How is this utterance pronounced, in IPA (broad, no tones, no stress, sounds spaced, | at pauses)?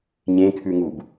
ɲ ẽ kʰ ʉ ŋ u b